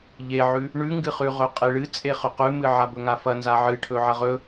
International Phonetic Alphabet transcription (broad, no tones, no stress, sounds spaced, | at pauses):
ʎ e ʕ ʉ | ɳ ʉ ŋ ɡ ɨ χ ʉ ʁ ɵ qʼ e ɭ ɨ t͡sʼ e χ ɵ q ʉ m ɨ ʕ a b ɵ ŋ a f ɐ n z a ʕ ɨ ʈʰ ɵ ʕ ɐ ʁ ɵ